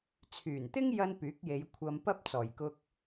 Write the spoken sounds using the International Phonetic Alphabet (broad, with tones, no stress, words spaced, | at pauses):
t͡sʰyː˨˩nt̪ɪ˥ŋ jɐ˥npyː˨˥k̚je˨˧j kʷʰɐ˧mpɐ˥p̚t͡sɔː˨˩jkʊ˧k̚